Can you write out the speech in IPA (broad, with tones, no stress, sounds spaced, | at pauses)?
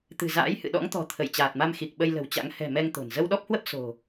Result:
t̪ ɨ̤˨˩ z a̰ː˧˥ j h ɨ̰˧˨ ɗ ɔ̰˧˥ ŋ t̪ ɔ̤˨˩ t̪ʰ ə˧˩ j t͡ɕ aː˨˩ t̚ m a˧ m x i˨˩ k̚ ɓ ə˧ j l ə̤˨˩ w t͡ɕ a̰˧˥ ŋ h ɛ̤˨˩ m ɛ˧ ŋ t̪ o̤˨˩ n z ə˧ w ɗ ɔ˦˥ p̚ h w ə˦˥ p̚ s o̤˨˩